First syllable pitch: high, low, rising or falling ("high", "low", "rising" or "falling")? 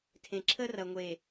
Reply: low